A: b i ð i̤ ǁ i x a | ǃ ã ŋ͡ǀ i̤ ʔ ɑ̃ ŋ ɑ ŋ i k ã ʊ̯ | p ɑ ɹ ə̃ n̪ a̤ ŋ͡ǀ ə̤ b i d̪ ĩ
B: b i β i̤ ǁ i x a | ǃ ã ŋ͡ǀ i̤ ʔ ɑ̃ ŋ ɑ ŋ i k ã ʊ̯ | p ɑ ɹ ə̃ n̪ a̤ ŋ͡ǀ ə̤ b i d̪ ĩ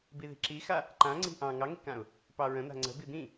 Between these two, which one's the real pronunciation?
A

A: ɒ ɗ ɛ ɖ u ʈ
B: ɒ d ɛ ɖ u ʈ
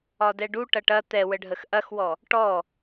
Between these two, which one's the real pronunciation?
B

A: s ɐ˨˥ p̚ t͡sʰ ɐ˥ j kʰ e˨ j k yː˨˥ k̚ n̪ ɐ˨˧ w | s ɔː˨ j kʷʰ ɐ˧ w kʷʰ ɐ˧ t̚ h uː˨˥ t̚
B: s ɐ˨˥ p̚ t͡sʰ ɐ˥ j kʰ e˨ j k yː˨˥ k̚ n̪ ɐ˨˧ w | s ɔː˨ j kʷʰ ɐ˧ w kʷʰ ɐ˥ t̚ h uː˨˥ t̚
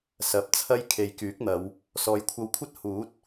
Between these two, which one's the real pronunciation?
B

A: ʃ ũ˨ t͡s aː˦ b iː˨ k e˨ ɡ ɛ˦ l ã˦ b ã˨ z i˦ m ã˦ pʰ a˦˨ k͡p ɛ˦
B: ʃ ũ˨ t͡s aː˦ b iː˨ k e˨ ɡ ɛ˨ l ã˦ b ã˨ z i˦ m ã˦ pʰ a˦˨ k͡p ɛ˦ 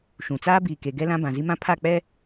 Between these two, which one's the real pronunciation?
A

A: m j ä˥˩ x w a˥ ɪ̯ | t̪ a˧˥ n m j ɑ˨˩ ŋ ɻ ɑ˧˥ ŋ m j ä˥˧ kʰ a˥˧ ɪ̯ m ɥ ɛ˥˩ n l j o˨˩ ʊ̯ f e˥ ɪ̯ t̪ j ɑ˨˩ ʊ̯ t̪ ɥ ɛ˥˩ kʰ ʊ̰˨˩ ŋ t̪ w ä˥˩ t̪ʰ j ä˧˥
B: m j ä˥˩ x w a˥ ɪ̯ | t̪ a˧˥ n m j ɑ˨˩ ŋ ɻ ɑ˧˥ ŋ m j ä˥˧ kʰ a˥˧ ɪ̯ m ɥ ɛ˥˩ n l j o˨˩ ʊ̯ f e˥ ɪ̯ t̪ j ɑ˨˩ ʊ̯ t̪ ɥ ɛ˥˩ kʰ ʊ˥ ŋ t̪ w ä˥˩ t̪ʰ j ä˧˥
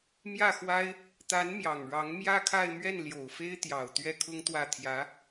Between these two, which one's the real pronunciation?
B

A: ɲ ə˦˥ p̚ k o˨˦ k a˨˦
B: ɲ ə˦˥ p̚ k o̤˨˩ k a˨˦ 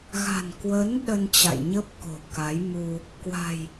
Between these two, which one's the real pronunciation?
B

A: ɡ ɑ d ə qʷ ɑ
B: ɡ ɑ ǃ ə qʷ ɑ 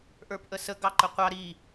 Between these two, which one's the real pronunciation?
B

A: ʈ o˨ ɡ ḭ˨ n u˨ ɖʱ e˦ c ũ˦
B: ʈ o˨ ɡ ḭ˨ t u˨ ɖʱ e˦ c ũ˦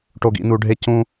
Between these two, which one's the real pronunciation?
A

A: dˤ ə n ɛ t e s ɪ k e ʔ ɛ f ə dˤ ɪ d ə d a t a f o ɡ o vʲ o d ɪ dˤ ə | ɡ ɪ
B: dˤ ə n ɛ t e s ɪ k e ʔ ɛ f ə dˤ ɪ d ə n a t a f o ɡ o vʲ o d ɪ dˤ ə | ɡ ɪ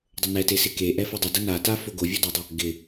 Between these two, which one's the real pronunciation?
B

